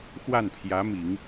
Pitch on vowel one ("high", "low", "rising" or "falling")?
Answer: falling